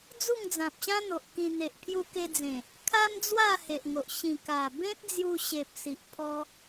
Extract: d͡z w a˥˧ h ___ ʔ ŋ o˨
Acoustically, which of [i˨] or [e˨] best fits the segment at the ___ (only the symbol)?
e˨